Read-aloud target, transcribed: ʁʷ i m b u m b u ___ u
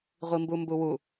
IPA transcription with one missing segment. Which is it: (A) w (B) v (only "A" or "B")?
A